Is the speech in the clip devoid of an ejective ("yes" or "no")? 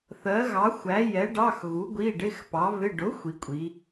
no